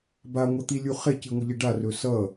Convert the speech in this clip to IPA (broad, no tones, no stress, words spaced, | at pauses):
baŋʷʌt̪ilʲu χeciŋʷəʎi ɖarɵ sʌ